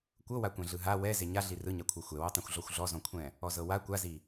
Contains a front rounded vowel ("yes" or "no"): no